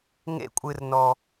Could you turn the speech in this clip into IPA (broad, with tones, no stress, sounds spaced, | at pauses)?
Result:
ŋ ḛ˧ kʷʼ ɨ˨ r n ɔ˨